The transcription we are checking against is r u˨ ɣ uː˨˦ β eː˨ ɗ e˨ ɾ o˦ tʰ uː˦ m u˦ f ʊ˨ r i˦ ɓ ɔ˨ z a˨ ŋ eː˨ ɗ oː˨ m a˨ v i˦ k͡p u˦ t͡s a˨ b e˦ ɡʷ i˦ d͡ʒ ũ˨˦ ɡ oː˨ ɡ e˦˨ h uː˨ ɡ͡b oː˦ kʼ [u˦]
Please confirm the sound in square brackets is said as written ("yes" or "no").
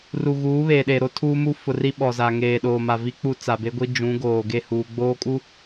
yes